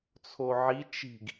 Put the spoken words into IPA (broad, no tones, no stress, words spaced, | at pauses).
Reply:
t͡sʰoʕi t͡ʃi̤ɡ